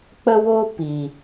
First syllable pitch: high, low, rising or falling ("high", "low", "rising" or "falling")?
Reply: high